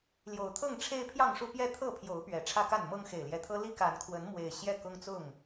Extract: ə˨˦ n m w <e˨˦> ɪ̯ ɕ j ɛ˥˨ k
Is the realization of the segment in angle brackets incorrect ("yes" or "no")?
yes